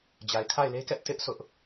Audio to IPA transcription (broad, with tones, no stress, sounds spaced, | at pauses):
d͡ʑ a˨ ɪ̯ kʰ a˦˨ ɪ̯ l e˦ k ɛ˦ ʔ t ɪ˦ ʔ sʰ ʊ˦ ʔ